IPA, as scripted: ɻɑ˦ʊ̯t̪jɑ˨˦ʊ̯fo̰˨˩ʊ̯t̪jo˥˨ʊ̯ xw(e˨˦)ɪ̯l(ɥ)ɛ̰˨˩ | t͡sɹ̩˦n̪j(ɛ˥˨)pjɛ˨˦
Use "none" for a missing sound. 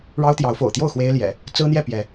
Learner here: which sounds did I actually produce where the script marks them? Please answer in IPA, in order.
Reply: e˦, j, ɛ˥˨

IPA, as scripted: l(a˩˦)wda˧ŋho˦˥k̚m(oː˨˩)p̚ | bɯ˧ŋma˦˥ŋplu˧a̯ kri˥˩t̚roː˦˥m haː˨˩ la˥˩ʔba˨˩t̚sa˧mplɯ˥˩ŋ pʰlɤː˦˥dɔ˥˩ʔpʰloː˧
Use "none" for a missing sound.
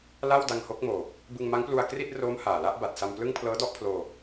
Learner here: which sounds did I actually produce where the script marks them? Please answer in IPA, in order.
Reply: a˥˩, oː˨˩

